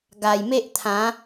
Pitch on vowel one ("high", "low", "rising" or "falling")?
low